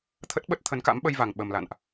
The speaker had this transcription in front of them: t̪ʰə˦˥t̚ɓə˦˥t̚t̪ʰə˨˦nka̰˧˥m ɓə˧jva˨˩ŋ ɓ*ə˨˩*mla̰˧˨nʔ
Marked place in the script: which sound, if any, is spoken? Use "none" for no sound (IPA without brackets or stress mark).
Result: ə˨˩